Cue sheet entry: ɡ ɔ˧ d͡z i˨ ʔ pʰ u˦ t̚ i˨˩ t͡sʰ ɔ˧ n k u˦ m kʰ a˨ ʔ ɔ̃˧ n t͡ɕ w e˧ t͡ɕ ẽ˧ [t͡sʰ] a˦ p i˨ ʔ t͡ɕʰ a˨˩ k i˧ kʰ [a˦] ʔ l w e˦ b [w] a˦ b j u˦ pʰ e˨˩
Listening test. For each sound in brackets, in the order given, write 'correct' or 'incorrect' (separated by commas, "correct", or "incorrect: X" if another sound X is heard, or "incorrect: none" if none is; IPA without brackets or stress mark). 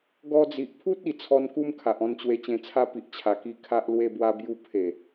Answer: correct, correct, correct